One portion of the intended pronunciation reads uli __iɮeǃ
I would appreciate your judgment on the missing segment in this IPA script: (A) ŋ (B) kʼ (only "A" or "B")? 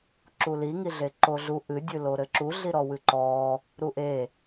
A